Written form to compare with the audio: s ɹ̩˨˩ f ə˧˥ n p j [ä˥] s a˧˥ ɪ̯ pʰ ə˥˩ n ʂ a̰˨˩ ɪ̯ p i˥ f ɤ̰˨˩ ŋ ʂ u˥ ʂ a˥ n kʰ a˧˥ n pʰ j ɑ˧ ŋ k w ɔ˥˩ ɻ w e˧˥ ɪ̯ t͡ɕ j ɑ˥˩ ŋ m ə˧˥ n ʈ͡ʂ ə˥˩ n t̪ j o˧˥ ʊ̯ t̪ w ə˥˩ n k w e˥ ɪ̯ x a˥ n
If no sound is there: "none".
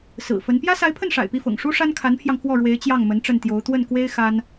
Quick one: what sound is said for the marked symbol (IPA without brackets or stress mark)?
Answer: ä˥